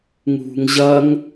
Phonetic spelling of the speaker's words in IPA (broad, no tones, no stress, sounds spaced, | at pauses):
ŋ ṳ ŋ ʑ ɐ ŋ